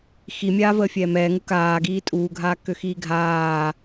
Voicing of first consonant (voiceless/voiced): voiceless